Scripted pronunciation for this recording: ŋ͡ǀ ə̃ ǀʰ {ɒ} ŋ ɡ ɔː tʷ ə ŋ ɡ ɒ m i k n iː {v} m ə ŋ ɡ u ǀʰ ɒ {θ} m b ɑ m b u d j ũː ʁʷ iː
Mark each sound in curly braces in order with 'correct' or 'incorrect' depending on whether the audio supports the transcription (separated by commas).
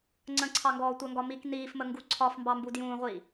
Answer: incorrect, incorrect, incorrect